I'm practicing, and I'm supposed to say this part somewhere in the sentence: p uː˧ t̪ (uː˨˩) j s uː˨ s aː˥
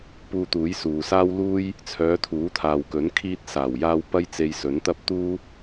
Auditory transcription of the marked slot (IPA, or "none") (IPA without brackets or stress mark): uː˨˥